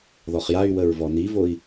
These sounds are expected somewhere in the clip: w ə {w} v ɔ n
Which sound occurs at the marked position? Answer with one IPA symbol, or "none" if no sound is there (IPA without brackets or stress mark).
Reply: ɹ